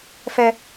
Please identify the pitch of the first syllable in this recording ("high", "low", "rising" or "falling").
high